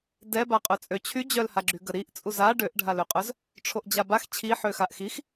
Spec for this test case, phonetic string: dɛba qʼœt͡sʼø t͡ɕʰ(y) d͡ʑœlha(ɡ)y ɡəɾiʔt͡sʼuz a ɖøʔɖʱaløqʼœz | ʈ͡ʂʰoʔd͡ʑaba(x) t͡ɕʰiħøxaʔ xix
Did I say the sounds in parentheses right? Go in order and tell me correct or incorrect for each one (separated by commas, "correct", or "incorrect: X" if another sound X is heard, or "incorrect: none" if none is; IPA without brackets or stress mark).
correct, incorrect: ɡ͡ǁ, correct